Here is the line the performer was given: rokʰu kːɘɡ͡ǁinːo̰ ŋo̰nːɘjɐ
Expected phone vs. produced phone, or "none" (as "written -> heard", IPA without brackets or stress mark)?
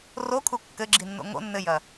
none